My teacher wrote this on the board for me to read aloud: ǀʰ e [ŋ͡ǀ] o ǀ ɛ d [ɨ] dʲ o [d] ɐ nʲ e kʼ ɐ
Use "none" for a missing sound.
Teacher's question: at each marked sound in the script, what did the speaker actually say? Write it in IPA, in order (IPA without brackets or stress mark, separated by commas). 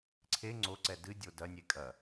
ŋ͡ǀ, ɨ, d